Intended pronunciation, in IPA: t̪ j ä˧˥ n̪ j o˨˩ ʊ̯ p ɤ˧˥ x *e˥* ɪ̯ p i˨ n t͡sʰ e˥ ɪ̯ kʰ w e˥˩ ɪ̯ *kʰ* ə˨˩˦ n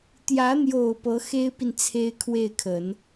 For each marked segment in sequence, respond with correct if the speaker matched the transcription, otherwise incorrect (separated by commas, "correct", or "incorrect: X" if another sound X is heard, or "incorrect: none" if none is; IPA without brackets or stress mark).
correct, correct